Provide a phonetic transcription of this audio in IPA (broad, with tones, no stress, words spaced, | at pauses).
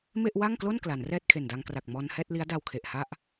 me˥˩ʔwa˥˩ŋklo˥˩n kla˩˦nrɛː˥˩t̚kʰe˨˩nda˧ŋ kra˨˩k̚ mɔː˧nhɛː˥˩t̚li˦˥a̯ da˧wkʰe˨˩ʔha˥˩ʔ